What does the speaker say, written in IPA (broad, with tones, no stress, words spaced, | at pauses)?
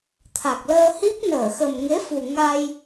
t̪ʰa˨˩k̚ləː˧ hi˦˥p̚ nəː˧˩xə˨˩mŋe˨˦fu˨˩ ŋa˧j